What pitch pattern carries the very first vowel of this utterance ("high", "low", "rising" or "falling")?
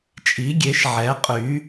rising